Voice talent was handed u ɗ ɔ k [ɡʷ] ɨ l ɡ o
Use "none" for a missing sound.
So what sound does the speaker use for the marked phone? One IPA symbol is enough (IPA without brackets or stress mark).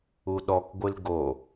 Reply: ɡʷ